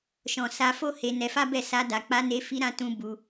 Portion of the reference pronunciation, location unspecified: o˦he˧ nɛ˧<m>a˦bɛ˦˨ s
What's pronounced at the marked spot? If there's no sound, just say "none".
f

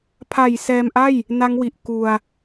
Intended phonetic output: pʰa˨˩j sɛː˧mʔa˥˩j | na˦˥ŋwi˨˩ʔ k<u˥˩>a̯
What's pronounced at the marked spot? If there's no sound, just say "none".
u˧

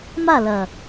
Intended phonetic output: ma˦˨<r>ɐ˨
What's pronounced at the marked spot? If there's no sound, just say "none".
l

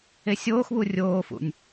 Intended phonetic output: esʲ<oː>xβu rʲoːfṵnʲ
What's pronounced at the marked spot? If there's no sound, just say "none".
oː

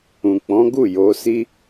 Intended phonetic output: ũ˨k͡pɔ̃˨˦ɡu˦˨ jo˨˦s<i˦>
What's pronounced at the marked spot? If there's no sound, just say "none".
i˦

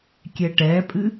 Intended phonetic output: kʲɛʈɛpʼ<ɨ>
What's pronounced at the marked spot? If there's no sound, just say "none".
ɨ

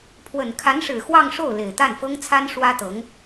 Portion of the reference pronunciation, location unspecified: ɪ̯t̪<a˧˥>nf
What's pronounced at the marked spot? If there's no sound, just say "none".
a˥˩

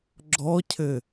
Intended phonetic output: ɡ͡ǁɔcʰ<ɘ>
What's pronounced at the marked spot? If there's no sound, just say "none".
ɘ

